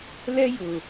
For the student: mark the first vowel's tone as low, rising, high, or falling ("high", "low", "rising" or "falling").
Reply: high